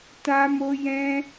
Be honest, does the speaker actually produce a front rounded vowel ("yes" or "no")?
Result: no